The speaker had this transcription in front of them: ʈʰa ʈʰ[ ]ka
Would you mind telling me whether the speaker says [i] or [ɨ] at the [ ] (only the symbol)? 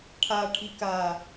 i